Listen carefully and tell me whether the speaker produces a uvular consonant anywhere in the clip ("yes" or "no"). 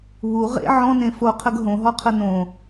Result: yes